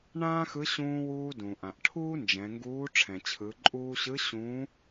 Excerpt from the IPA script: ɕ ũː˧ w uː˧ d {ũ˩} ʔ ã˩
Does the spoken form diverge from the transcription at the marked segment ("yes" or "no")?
no